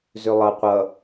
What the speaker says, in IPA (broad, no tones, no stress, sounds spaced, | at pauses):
z ø lˠ ʌ qʷ ʌ